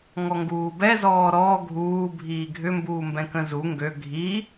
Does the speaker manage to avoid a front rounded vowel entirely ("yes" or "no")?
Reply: no